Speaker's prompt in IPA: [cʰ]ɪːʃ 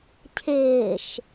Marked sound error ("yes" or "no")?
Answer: no